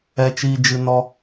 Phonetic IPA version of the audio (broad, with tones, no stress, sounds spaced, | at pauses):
ɛ˧ t͡ʃ iː˧ d͡ʒ ɨ˧ n ɔ˧